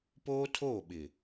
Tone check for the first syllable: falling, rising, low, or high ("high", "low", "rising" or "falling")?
high